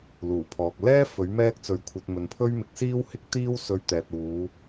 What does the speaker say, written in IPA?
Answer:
l uː˨˩ pʰ ɔː˨ k̚ l ɛː˥ f ɵ˨˥ ɥ m ɛː˥ k̚ t͡s ɵ˧ ɥ kʷʰ ɐ˧ t̚ m ɵ˨ n pʰ ɵ˥ ɥ m ɪ˨˥ k̚ s iː˥ w h ɪ˥ k̚ t̪ iː˥ w s ɵ˧ ɥ t̪ ɛː˨ t̚ uː˨˧

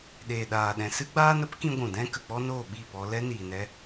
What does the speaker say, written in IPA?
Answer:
ɗ eː˨ ɗ aː˨ ɗ ɛ̃˨ s ɨ˦ ɡ͡b aː˦ n ə˦ p k ĩ˧ ɡʷ ũ˨ d ɛ̃˦ k ə˨ k͡p ɔ˦ n oː˦˨ ɓ i˦˨ p ɔ˧ l ɛ˦ n iː˨ n ɛ˧

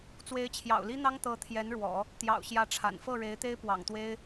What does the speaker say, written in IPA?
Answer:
t͡s w e˧˥ ɪ̯ t͡ɕʰ j ɑ̰˨˩ ʊ̯ l i˥ n̪ ɑ˥ ŋ t̪ ɤ˧˥ t̪ʰ j ɛ˧˥ n ɻ w ɔ̰˨˩˦ | t̪ j ɑ̰˨˩ ʊ̯ ɕ j ä˧˥ ʈ͡ʂʰ a̰˨˩ n f ɤ˥˩ ɻ e˧˥ ɪ̯ t̪ e˥ ɪ̯ p w ɑ̰˨˩ ŋ t̪ w e˥ ɪ̯

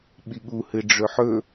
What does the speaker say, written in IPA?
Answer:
ɓ i ɠ u h ɨ ɖ͡ʐ ɵ ħ ɵ

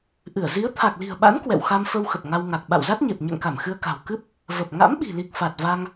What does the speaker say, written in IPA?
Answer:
ʔ ɨ˧˩ ə̯ z i˨˦ ə̯ t̪ʰ a˨˩ k̚ l i̤˨˩ ə̯ ɓ a̰˧˥ n k w ɛ̰˧˨ w x a˧ m f ə˧ w x ə˨˩ p̚ ŋ a˧ w ŋ a˨˩ k̚ ɓ a̰˧˨ w z a˦˥ t̚ ɲ e˨˩ p̚ ɲ ɛ̰˧˨ ŋ k a˧˩ m x ɨ˧ ə̯ k a̤˨˩ w k ɨ˦˥ p̚ | v ə˨˩ p̚ ŋ a̰˧˥ m ɓ i̤˨˩ l i˨˩ k̚ f a˨˩ t̚ v a˧ ŋ

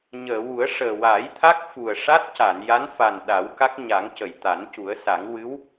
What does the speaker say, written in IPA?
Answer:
ɲ əː˨˩˨ w u˨˩˦ ə̯ ʂ əː˨˩ w a˨˩˦ j t̪ʰ a˦˥ k̚ f u˨˩ ə̯ ʂ a˦˥ t̚ c a˨˩˨ n j a˧˥ n f a˨˩ n ɗ a˨˩˦ w k a˦˥ k̚ ɲ a˨˩˦ ŋ c ə˨˩˨ j t̪ a˨˩˦ n c u˨˩˦ ə̯ s a˨˩˦ ŋ w ɨ˧˥ w

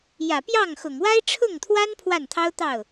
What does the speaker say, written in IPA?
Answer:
j ä˨˩ p j ɑ˥˩ ŋ x ʊ˨˩ ŋ w a˥ ɪ̯ ʈ͡ʂʰ ʊ˥˩ ŋ t̪ʰ w a˥ n pʰ w a˥˩ n t̪ʰ ɑ˥ ʊ̯ t̪ ɑ˥˩ ʊ̯

